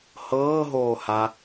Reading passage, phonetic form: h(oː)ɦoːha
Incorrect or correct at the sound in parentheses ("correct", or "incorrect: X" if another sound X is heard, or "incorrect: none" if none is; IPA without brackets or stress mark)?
incorrect: ɤː